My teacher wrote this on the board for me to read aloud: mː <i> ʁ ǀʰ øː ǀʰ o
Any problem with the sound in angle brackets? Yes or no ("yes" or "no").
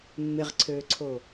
yes